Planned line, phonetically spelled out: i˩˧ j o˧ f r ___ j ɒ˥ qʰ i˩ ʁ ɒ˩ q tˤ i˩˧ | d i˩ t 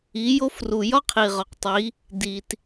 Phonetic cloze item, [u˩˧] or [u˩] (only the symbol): u˩